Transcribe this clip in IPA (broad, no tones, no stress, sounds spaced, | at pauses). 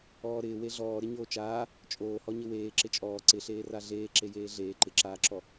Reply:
ɔː ɾ ɪː w e ɮ ɔː ɾ ɪ ɲ oː t͡ʃ aː | t͡ʃʼ oː h ɔ ɲ ɪ w eː ǁ ɪ t͡ʃʼ ɔː ǀ ɪ ɬ eː r a ɮ eː ǁ e j eː ɮ eː ǃ ɪ ǁ aː ǁ ɔ